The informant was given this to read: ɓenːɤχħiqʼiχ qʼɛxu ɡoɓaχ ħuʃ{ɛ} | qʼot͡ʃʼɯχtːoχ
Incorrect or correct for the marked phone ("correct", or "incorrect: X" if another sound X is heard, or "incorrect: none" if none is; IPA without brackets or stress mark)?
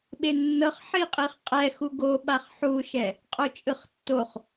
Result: correct